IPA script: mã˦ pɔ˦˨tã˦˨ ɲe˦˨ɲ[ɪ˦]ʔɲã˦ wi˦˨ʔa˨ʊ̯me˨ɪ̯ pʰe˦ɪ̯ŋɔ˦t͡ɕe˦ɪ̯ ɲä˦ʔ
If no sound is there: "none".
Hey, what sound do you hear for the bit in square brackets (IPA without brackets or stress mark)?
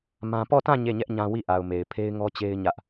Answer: ɛ˦